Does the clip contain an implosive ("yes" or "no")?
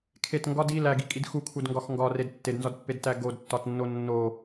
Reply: no